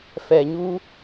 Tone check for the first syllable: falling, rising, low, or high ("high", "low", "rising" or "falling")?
low